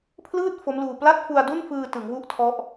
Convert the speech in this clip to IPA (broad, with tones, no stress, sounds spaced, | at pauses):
pʰ l ɯː˥˩ t̚ f o˦˥ m l uː˧ p l a˥˩ t̚ f u˧ a̯ d u˥˩ n f ɯː˧ t ɯ˩˦ ŋ w u˥˩ ʔ tʰ ɔ˦˥ ʔ